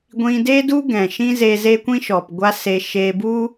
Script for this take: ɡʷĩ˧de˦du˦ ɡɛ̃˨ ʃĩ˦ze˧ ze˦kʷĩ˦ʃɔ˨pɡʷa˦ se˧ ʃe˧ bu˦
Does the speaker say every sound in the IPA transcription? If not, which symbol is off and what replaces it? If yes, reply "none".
none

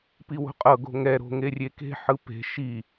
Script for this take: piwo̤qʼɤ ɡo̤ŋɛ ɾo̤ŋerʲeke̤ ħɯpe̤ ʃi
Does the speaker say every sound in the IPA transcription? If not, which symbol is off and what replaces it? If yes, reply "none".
none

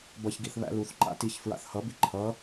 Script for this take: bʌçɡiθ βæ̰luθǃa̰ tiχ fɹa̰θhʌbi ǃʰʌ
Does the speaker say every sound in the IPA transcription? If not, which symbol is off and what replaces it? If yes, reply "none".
χ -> ç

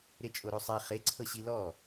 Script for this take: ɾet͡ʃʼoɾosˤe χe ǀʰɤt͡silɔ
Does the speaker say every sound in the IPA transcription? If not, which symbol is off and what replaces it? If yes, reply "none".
t͡s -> ɕ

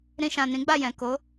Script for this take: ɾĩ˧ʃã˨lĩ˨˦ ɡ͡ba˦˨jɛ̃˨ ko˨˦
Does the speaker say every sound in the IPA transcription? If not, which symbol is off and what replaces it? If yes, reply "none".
l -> n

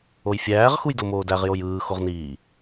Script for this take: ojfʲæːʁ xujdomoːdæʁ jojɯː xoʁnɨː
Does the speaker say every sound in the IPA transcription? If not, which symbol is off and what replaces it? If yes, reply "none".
ɨː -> iː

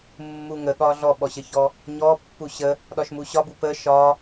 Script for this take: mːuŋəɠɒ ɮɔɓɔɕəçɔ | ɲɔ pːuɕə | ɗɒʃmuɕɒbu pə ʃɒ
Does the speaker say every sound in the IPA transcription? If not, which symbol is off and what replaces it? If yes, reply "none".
none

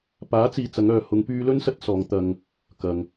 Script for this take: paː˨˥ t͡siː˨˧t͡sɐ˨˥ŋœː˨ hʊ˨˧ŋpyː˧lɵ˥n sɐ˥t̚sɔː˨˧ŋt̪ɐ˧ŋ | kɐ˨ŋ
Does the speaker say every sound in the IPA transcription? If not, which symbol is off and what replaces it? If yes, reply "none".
none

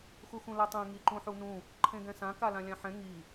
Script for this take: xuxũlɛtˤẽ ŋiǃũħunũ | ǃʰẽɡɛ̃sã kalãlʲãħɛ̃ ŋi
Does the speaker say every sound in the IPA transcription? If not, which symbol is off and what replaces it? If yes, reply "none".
none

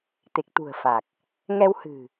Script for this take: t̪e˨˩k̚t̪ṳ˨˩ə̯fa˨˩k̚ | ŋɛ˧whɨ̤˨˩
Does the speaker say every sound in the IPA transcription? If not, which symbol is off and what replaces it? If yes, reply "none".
none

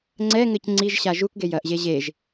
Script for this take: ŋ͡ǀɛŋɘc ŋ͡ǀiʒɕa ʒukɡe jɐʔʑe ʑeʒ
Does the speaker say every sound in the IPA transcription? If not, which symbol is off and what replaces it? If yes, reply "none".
none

